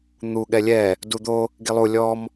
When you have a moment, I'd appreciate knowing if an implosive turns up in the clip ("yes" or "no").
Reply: yes